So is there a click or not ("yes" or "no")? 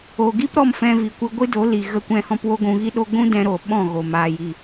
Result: no